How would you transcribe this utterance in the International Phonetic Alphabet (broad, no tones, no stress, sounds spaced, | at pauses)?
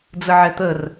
d͡z ə ʕ ɛ t̪ ə r